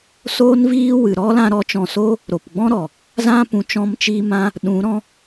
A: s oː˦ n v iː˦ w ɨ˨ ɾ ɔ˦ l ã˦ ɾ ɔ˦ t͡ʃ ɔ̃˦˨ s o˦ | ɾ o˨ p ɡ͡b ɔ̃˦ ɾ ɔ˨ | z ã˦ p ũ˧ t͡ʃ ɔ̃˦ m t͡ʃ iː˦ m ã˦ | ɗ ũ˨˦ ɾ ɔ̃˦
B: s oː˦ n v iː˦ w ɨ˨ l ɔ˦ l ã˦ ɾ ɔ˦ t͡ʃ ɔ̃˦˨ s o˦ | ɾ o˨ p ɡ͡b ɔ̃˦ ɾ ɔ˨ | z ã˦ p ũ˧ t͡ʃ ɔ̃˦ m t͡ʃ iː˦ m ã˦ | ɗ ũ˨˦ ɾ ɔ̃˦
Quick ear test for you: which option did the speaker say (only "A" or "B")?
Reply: A